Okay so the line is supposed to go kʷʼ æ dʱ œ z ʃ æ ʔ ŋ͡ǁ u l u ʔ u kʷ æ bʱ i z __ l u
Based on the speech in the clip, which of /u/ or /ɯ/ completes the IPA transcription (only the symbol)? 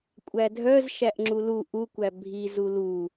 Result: u